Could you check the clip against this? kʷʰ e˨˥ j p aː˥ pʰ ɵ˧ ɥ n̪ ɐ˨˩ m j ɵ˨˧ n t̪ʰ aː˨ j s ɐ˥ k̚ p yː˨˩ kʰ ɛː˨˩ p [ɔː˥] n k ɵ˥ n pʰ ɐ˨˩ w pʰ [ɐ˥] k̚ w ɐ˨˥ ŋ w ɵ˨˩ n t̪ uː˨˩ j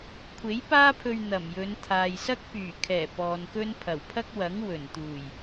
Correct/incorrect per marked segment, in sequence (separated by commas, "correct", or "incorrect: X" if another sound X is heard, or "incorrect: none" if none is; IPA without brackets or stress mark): incorrect: ɔː˨, correct